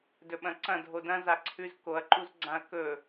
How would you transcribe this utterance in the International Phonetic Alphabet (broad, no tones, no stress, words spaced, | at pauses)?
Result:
dɵɓɐ̃ǀɐ̃ dʱodɐ̃ zaǀʰʉz koɐ̯ǃuz ɡ͡ǀãɐ̯kɵ